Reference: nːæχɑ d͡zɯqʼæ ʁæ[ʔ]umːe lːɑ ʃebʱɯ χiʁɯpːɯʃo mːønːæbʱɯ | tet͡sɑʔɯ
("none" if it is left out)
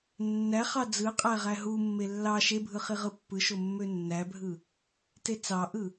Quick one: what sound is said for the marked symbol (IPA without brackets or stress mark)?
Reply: ɦ